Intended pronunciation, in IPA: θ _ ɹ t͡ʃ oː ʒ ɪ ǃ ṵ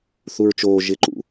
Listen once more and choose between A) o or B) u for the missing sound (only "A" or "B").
B